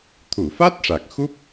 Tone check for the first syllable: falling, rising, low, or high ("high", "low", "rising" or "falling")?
low